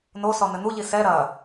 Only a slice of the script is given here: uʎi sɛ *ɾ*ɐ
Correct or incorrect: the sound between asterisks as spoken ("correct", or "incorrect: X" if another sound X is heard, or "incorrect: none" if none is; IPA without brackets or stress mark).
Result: correct